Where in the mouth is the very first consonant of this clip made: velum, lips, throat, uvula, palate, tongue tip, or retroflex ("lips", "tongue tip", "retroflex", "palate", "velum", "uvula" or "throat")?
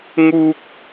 velum